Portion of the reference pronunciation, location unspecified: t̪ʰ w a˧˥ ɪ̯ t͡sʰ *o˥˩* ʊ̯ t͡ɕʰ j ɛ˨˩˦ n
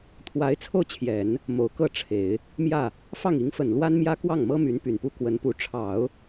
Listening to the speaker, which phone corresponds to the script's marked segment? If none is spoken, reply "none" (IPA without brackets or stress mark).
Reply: o˥˩